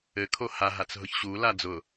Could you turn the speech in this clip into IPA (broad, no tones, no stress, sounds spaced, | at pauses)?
ɘ kʰ o h a ɦ a t͡s ɦ ʊ ç ɕ u l a d͡z ʊ